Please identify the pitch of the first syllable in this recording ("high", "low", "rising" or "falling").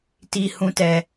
high